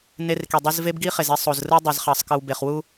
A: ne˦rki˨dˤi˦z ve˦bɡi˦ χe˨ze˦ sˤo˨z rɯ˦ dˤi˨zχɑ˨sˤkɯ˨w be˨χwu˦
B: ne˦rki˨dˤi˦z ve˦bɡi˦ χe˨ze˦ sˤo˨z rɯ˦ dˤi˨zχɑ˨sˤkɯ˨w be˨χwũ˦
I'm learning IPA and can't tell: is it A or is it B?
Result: A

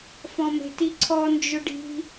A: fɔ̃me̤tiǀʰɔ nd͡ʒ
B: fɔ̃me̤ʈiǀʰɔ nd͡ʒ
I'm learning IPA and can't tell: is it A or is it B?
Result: A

